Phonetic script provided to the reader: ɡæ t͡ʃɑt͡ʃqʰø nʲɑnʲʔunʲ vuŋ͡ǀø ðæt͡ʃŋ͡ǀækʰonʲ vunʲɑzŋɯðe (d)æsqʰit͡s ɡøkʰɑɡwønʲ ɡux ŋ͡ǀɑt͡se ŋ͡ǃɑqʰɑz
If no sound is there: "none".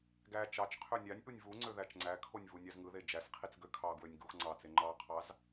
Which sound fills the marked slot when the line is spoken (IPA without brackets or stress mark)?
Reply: d͡ʒ